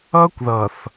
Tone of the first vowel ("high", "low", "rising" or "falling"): high